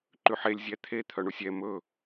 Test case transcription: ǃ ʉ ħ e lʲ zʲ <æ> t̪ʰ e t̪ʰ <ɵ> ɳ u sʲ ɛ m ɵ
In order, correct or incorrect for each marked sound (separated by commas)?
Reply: correct, incorrect